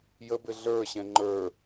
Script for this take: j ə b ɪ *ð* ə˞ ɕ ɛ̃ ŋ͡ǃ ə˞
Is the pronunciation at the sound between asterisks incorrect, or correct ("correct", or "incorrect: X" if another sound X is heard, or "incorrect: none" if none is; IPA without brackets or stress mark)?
incorrect: ɮ